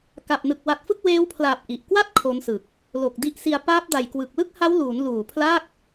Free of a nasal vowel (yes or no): yes